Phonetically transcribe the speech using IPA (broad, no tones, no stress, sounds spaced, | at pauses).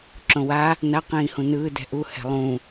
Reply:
ǁ õ w a | n a q ĩː h ũ n ɯː d ɛ̤ ʔ u h ɛ̤ lˠ ũ